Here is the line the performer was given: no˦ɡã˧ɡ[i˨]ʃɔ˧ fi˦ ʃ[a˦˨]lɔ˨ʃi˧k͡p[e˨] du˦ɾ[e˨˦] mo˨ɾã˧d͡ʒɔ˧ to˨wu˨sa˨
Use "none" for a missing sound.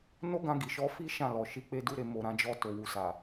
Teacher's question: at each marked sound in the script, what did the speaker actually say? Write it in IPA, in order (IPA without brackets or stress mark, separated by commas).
i˨, ã˦˨, e˦, e˧